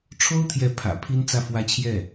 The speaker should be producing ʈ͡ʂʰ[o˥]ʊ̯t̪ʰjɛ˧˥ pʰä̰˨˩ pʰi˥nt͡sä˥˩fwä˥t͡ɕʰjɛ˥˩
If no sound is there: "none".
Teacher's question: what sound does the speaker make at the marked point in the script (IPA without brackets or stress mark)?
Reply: o˥